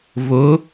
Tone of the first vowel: rising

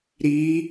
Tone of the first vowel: rising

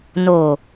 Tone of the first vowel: low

